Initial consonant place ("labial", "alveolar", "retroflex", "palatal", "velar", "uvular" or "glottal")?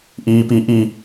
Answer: glottal